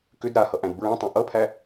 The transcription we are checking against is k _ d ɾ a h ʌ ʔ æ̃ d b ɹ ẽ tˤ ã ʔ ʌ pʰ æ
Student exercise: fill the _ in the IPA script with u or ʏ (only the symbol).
ʏ